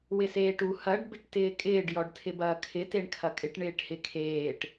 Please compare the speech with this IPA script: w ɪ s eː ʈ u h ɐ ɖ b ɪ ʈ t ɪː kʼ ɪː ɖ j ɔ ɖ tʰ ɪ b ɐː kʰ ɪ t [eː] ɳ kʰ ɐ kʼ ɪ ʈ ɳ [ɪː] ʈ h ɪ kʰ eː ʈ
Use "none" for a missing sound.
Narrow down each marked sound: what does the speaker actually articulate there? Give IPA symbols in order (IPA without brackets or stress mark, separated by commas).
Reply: e, ɪː